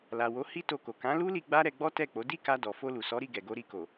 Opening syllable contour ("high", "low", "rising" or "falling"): low